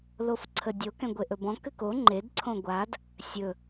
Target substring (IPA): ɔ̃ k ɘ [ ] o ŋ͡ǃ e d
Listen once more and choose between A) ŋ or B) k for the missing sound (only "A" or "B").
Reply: B